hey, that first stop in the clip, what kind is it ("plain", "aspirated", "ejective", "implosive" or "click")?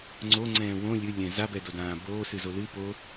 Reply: click